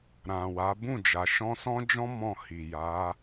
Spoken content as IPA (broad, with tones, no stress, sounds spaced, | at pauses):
ɾ ã˨ w a˨˦ b ũ˦˨ d͡ʒ a˨ ʃ ɔ̃˧ s ɔ̃˦ d͡ʒ ɔ̃˦ m ɔ̃˦˨ h i˨ j a˨˦